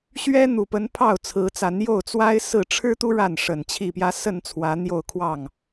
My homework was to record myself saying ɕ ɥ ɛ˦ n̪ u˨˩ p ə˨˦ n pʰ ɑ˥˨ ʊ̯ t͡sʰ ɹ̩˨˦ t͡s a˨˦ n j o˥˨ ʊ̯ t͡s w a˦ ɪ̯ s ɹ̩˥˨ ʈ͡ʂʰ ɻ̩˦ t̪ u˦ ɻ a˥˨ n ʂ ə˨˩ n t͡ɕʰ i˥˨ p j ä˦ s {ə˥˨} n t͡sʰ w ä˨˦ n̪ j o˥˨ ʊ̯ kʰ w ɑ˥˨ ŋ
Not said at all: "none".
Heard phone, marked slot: ə˥˨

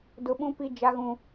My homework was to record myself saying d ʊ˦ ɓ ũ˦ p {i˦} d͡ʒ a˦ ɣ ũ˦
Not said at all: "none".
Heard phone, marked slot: i˦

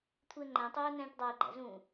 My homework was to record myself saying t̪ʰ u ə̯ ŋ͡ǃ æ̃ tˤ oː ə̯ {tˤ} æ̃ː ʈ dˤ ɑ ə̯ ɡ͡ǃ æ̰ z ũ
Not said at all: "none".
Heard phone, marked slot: n̪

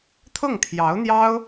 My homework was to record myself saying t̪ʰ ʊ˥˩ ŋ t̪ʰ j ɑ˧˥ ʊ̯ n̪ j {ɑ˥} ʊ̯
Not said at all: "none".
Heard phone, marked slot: ɑ˥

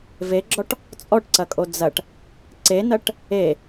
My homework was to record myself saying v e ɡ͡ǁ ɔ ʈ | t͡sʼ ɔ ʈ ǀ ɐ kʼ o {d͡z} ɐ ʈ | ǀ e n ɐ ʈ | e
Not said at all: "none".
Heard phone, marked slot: d͡z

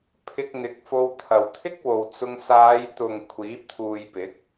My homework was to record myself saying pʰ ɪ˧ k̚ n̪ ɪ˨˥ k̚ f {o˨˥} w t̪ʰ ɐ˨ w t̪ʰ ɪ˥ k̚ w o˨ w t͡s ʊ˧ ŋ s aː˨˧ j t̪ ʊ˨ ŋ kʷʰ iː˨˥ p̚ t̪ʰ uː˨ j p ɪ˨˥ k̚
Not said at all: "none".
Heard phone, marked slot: o˧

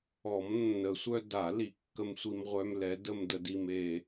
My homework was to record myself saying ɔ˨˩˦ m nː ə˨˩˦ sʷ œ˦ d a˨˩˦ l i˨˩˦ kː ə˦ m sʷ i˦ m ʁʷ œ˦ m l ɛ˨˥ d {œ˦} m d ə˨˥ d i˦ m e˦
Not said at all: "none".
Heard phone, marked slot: ə˦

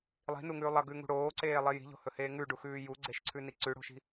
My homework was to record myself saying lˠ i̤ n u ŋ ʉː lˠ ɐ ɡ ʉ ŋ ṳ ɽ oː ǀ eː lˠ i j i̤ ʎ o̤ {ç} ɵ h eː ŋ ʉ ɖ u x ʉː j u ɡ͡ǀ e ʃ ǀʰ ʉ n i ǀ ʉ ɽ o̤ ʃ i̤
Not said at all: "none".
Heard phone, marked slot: h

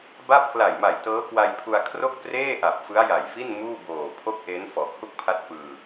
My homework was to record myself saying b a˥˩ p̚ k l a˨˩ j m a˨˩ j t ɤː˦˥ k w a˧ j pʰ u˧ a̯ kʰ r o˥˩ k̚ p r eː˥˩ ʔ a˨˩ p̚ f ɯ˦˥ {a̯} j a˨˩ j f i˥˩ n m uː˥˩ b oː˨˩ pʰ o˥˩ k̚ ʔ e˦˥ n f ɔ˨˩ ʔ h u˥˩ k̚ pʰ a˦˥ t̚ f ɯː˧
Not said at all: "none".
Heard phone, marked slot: a̯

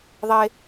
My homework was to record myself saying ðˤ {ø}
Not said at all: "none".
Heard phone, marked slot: e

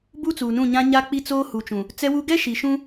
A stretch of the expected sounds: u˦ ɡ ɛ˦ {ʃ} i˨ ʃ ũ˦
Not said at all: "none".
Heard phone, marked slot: ʃ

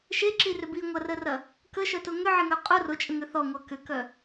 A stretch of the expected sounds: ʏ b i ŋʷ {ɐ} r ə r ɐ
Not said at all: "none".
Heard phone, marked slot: ɐ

